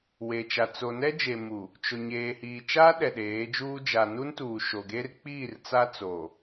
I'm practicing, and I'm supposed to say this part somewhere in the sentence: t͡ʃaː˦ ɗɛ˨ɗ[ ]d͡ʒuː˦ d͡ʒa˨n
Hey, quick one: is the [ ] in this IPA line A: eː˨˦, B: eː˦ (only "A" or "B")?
A